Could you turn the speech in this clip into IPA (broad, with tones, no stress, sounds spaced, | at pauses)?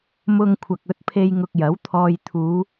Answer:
m ʊ˧ ŋ kʷʰ ɐ˨ k̚ ɵ˨˥ t̚ pʰ e˧ j ŋ ʊ˧ k̚ j ɐ˨˥ w t̪ʰ ɔː˧ j t̪ʰ uː˨˧